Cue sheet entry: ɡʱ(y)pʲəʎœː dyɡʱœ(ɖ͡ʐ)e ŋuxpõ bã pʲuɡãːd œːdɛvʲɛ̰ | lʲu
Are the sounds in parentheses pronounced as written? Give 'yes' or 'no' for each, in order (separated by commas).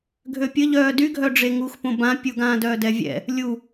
no, yes